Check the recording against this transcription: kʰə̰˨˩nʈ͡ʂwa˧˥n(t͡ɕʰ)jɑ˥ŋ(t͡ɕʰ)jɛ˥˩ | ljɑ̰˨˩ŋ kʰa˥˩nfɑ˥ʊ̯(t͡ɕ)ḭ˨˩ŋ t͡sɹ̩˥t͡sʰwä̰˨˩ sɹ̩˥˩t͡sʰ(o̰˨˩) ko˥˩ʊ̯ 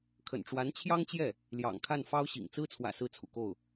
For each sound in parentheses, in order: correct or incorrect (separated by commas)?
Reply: correct, incorrect, incorrect, incorrect